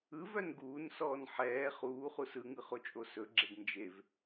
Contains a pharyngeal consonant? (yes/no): yes